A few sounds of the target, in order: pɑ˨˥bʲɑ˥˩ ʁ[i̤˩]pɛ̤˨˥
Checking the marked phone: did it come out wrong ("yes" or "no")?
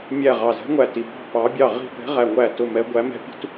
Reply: yes